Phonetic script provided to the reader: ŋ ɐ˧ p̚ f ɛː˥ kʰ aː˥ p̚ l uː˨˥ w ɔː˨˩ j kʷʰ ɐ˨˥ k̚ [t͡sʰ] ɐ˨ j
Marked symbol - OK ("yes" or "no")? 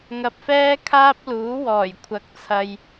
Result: yes